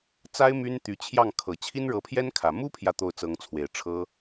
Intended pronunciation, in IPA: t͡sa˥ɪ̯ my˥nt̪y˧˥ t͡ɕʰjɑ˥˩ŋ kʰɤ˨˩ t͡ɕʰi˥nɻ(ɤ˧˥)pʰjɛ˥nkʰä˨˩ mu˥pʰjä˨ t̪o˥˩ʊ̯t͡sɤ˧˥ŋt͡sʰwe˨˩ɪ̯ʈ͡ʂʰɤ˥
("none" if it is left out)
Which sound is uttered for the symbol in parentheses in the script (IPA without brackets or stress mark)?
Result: ɤ˧˥